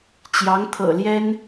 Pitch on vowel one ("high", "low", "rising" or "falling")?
rising